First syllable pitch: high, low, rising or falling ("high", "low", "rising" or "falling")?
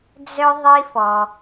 low